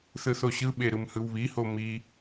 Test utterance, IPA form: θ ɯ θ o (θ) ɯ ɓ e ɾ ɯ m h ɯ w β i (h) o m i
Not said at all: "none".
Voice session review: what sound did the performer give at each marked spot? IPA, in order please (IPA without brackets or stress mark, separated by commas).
ɕ, h